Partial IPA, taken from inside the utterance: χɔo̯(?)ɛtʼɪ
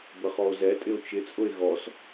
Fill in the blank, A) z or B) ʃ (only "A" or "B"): A